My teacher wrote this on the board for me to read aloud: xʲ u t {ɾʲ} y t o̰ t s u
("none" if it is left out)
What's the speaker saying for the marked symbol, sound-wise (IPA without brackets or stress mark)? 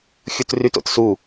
r